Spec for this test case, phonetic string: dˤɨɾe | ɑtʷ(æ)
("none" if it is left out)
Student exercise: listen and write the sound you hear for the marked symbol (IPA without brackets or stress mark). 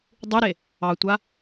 a